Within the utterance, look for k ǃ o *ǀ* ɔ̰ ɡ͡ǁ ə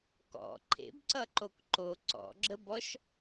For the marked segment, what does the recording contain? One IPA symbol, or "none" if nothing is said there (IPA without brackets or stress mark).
ǀ